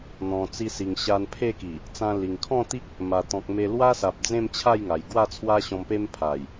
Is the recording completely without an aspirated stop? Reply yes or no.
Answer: no